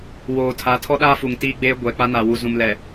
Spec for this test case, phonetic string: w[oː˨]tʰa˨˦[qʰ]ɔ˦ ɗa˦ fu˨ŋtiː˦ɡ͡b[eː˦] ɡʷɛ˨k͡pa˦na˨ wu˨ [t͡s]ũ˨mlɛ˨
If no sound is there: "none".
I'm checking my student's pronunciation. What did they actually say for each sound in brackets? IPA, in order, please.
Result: oː˨, tʰ, eː˦, z

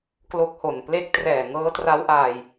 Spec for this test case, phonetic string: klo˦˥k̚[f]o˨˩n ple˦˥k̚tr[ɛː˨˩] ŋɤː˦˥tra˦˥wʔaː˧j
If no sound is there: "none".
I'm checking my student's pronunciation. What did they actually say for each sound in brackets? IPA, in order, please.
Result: h, ɛː˨˩

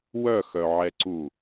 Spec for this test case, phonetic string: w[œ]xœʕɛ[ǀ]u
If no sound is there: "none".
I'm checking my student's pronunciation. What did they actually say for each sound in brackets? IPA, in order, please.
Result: œ, ǀ

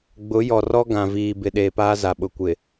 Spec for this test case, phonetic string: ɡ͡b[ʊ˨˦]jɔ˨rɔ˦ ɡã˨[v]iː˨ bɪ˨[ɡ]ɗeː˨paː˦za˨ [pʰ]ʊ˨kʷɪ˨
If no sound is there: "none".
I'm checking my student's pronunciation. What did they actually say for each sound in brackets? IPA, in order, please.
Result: ʊ˨˦, v, none, ɓ

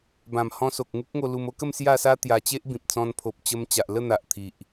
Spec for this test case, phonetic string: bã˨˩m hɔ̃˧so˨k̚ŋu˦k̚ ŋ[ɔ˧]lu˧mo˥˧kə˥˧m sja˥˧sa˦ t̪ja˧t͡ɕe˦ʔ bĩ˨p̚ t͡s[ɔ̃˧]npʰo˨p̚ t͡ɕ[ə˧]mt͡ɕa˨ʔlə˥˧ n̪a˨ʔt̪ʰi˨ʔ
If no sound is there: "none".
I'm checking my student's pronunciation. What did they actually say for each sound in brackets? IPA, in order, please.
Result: o˧, ɔ̃˧, ə˧

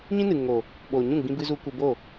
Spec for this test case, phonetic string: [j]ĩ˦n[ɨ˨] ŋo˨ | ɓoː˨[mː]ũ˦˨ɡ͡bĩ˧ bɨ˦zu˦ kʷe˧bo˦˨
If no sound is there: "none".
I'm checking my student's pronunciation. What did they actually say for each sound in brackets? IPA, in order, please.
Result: ɲ, ɨ˨, ɲ

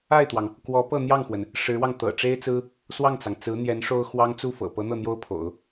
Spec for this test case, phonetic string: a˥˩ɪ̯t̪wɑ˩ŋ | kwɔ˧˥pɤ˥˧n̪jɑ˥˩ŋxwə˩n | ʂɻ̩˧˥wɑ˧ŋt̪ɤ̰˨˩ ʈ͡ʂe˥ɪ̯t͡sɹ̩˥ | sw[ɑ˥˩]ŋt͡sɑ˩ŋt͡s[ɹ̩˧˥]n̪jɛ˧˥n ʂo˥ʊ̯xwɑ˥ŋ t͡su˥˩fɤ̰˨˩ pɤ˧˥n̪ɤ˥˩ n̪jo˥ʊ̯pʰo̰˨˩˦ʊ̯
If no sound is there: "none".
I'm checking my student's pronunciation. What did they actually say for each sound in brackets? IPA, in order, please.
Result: ɑ˥˩, ɹ̩˧˥

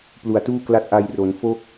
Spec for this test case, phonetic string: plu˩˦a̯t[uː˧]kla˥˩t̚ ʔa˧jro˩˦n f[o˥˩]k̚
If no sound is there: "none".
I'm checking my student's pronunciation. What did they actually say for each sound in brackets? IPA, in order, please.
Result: uː˥˩, o˥˩

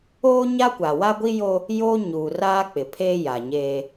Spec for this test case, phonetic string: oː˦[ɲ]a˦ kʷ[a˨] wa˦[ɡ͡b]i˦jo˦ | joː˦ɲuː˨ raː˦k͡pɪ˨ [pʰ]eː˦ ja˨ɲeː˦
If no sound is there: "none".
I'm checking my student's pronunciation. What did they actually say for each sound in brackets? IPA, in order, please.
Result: ɲ, a˨, ɡʷ, pʰ

